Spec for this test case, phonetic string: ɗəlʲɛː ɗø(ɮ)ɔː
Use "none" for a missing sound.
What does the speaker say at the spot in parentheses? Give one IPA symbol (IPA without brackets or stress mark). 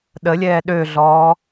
ɮ